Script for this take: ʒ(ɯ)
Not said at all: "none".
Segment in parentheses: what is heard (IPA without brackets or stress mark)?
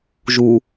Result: u